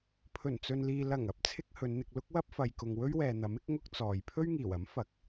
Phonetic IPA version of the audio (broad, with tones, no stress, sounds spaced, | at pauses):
pʰ ɵ˨˩ n t͡s ɵ˨ n l iː˨ l ɐ˨˩ ŋ ɐ˧ p̚ t͡sʰ ɪ˨ k̚ h ɵ˨˧ n n̪ ɪ˧ k̚ l ʊ˥ k̚ w ɐ˥ p̚ f ɐ˨ j k ʊ˨ ŋ w ɵ˥ ɥ w ɛː˨ n̪ ɐ˨˥ m ɪ˥ k̚ ŋ ʊ˥ k̚ t͡s ɔː˨ j pʰ ɵ˥ ɥ ŋ iː˨˩ w ɐ˨˥ m f ɐ˨ k̚